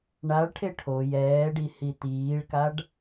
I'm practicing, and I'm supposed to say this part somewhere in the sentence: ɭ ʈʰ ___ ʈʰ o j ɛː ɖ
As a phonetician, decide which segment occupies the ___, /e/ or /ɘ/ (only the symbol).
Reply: e